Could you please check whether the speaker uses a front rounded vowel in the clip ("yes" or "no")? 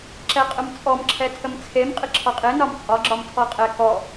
no